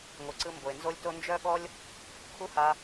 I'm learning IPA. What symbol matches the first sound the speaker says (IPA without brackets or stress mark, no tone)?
ŋʷ